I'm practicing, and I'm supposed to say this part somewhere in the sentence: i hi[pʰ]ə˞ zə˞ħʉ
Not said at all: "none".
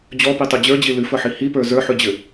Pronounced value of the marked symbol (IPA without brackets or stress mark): p